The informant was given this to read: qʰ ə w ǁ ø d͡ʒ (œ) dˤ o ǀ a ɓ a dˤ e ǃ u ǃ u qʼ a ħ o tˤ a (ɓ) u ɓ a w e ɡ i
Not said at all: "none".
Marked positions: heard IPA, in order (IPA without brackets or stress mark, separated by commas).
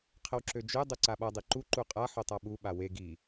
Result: ø, ɓ